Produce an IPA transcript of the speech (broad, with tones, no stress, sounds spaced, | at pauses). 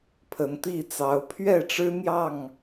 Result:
pʰ ə˨˦ n t̪ i˥˨ t͡s ɑ˨˦ ʊ̯ pʰ ɥ ɛ˥˨ ʈ͡ʂ ɻ̩˦ n̪ j ɑ˥˨ ŋ